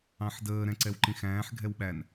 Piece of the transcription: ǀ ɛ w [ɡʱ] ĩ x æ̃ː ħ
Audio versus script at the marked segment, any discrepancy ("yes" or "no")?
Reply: yes